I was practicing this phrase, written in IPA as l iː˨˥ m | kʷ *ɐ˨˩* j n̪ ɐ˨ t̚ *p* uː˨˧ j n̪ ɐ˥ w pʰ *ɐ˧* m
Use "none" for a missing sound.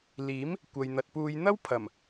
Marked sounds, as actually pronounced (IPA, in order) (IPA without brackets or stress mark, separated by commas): ɐ˨, p, ɐ˨˩